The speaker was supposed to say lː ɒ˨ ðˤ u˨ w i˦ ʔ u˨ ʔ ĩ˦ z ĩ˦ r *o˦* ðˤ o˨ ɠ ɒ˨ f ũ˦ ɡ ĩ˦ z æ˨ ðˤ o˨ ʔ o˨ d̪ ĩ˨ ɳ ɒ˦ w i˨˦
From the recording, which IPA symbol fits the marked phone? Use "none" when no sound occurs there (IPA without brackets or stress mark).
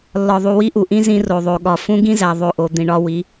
o˨